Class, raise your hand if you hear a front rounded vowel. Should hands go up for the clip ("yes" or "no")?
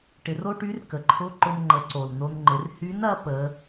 yes